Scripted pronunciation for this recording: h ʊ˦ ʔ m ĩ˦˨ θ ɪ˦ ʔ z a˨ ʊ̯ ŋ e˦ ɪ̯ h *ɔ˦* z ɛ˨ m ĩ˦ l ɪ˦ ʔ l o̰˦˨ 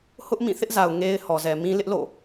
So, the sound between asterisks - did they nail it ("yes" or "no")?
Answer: no